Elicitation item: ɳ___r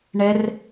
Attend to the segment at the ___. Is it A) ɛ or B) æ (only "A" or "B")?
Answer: A